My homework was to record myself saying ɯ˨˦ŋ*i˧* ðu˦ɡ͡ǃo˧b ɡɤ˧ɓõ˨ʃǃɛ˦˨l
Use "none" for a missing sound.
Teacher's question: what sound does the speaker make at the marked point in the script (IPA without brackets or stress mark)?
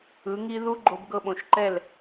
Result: i˦